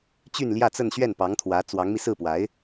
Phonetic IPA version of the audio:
t͡ɕ y˥˧ n l j ä˥˧ t͡s ə˥˧ n ɕ ɥ ɛ˥˩ n p ɑ˧˥ ŋ t̪ʰ w ä˧˥ t͡s w ɑ˧˥ ŋ m i˧ s ɹ̩˥˩ p w a˧˥ ɪ̯

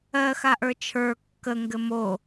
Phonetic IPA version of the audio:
ɜ x a ʔ ə˞ t͡ʃʰ ə˞ kː ə ŋ ɡ ɘ m o

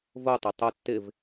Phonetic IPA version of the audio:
v o tˤ i tˤ o tː ɪ v

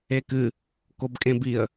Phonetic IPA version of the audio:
e k ɨ | k o b kʼ ẽ b i ə̯

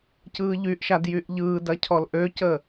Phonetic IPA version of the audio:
c ɯː ʎ y ʔ ʃ a d j y ʔ ʎ ɯː d ɐ cʰ ɔ l ʔ ø c ə

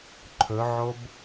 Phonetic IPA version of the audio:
ǃʰ ɵ ʕ o b

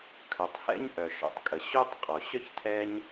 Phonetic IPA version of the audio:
kʰ œ˩ tˤ h ɛ̰˥ ɲ ʔ œ˩ ʃ ɔ̰˨ tˤ kʼ ə˩ ɕ o˥ tˤ qʼ ɔ˩ ɕ œ˥ ç tʰ ɛ˦ ɲ

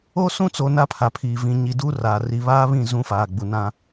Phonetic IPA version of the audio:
o˦ s ũ˦ t͡s o˨ n a˦ pʰ a˨ pʰ iː˨ v ĩ˨ ɲ i˨ d u˦ r aː˨ r i˨ β aː˦ β ĩ˦˨ z ũ˦ f aː˨ ɡ͡b u˨ n ã˦

